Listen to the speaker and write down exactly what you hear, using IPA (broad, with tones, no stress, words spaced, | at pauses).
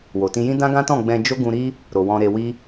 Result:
wo˨tĩ˧jĩ˦ dã˦ɡã˦tɔ̃˦˨ ɡ͡bɛ̃˧ d͡ʒo˦ ɡũ˧ɾi˦ | ɾo˨wɔ̃˧ɾe˧wi˦